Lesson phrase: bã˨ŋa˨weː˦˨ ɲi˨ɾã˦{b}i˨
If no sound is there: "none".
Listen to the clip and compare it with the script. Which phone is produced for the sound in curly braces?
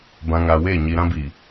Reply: b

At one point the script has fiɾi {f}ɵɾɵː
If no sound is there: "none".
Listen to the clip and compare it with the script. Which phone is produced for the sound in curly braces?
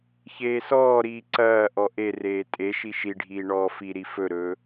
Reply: f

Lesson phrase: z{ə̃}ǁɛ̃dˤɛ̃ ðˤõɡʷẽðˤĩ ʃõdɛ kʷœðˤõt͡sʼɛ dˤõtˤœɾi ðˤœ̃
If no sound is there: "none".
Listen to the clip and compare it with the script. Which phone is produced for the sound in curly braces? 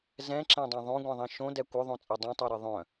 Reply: ɛ̃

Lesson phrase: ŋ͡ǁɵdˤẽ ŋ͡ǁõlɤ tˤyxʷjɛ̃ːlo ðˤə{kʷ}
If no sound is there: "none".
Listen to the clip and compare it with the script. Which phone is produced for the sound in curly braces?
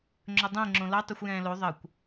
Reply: kʷ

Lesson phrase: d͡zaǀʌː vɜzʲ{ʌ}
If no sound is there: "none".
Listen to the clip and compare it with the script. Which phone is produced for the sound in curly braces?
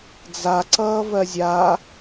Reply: a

